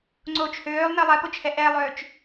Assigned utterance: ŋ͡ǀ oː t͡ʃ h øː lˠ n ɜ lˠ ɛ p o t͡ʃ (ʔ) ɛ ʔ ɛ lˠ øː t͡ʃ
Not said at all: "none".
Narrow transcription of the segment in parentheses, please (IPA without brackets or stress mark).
h